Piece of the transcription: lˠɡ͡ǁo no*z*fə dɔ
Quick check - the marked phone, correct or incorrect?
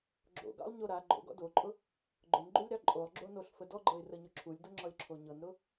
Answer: incorrect